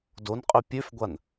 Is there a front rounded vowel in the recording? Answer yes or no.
yes